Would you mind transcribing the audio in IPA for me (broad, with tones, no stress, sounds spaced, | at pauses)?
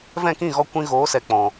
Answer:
v ɛ̃˦˨ k ĩ˦˨ ɣ ɔ˧ kʷ ĩ˧ ɣ oː˨˦ s ɛ˨ k͡p ɔ̃˨